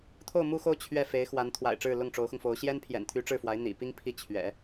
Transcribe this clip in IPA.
t̪ʰ o˥˧ ʊ̯ m u˥˧ x o˥˧ ʊ̯ t͡ɕʰ ɥ ɛ˥˩ f e˧˥ ɪ̯ x w a˧˥ n t̪ʰ w a̰˨˩ ɪ̯ ʈ͡ʂ ɻ̩˥˧ l ʊ˥˩ ŋ ʈ͡ʂ o˧˥ ʊ̯ x ʊ˧ ŋ f o˧˥ ʊ̯ ɕ j ɛ˥ n pʰ j ɛ̰˨˩ n t̪ʰ y˧˥ ʈ͡ʂ ɻ̩˥˩ f w a˧˥ ɪ̯ n̪ ḭ˨˩ p i˥ ŋ pʰ i˥˩ t͡ɕʰ ɥ ɛ̰˨˩˦

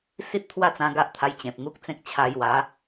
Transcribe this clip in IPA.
s i˦ t̚ t̪ʰ w a˥˧ t͡s ã˧ ɡ a˦ ʔ t̪ʰ a˧ j t͡ɕ ẽ˨ p̚ ŋ u˦ k̚ t͡s ẽ˦ k̚ t͡ɕʰ a˧ j w a˨˦

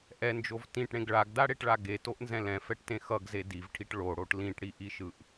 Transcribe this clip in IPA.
ʔ ɛ n d͡ʒ o v t ĩ ʈ ɽ ẽ ɡ ɭ a ɡ d a ɽ e ʈ ɭ a ɡ e t o ʔ n z ɛ̃ l ɛ̃ f ɛ ʈ t ẽ x ʌ ɡ z e d i v ʈʰ i ʈ ɭ o ɽ o ʈ l ĩ ʈ ɽ i ʔ i ʃ ɯ ʔ

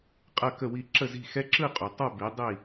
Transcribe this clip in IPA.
qʼ ɐ˥˨ k ə˥˨ w i˥˨ ǁ ə˥˨ z i̤˥˨ x ɛ˦ ǁ ɯ˥˨ qʼ u˩ tˤ ɐ˥˨ b i˨˥ dˤ i˥˨

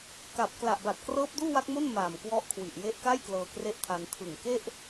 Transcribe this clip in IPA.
k a˨˩ p̚ k l a˨˩ ʔ b a˨˩ t̚ k r ɤː˦˥ p̚ d uː˥˩ w a˦˥ k̚ m o˥˩ n m aː˨˩ m k w ɔ˦˥ ʔ kʰ w i˨˩ ʔ j e˦˥ ʔ k a˥˩ j k l ɤː˧ k r e˥˩ ʔ tʰ a˧ n tʰ ɯ˨˩ ŋ k e˥˩ ʔ

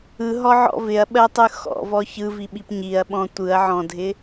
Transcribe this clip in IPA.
ɯ ɦ ɔ ʕ ɔ̰ v ɪ ɐ̯ ɓ ɜ tˤ ɯ x ɔ̰ v ɔ ç ɯ v i ɓ i p ɲ i ɐ̯ ɓ ɔ̃ tʷ ɯ ɐ̯ ʕ ɔ̃ dʱ ɪ

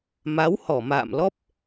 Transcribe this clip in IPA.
m a˨˦ w h ɔ˧˩ m a̰ː˧˨ m l ɔ˦˥ p̚

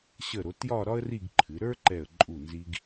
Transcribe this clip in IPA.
ɕ ə˧˩ ɾ o˩˧ t j ɒ˥˧ ɾ ɒ˥ ə̯ r i˥˧ ɡ ǃʰ ɨ˩˧ ɾ ə˞˥ ǃ ɛ˧˩ ə̯ ǃʼ u˧˩ n z i˧ ɡ

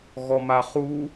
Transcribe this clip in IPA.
ɣ ɔ m a χ u

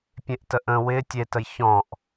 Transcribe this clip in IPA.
pʲ ẽ ʔ t ə ʔ ə̃ w ɪ tʲ e t ə j ç ɔ̃ ʔ

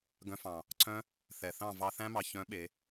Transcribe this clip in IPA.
ɡ œ̃˧ f ɑ̃˨ | ǀʰ œ̃˦ | θ ɛ˨ θ ɑ̃˦˨ v ɑ˧ θ æ̃˦ m ɑ˨ ç œ̃˨˦ ɓ e˨˦

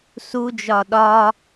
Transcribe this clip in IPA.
s u d͡ʒ ɒ ɗ ɒ

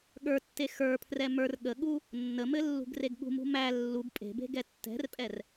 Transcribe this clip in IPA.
ɠ ə˞ tː e x ə˞ pʰ r ɛ m ə˞ r ɠ ə ɠ u | nː ə m ɘ lː ṳ ɡ r e ɡ ɠ ṳ m ṳ m æ lː u b pʼ e̤ b e̤ ɡ ɛ tː ɛ̤ r pʼ ɛ r

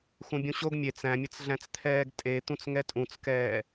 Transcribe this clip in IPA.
x ũ bʲ ũ ɕ o ɡ mʲ e t͡s æ̃ mʲ ə t͡s ɮ æ̃ t͡s t̪ʰ ɛː ɡ tʼ e t̪ ũ t͡s ŋ ɛ tʼ ũ t͡s k ɛː

